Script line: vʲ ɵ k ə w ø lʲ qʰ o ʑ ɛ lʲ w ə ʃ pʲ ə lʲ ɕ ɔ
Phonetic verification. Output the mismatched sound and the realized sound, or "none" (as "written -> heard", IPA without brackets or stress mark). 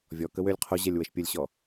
ɵ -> ɔ